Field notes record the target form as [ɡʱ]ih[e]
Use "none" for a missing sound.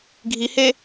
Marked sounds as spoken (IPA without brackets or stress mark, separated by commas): ɡʱ, e